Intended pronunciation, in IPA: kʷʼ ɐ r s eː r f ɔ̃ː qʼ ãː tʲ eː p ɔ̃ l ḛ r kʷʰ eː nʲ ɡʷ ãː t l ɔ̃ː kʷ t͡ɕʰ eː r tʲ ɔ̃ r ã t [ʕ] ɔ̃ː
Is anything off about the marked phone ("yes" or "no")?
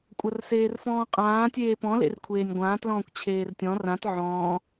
no